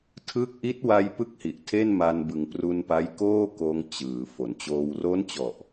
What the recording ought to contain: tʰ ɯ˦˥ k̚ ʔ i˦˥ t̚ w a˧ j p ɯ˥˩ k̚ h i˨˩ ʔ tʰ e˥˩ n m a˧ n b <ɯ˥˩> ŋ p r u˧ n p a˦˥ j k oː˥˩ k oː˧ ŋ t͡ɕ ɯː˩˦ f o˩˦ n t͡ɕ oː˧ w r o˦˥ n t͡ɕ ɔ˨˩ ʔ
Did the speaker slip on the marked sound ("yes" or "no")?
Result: yes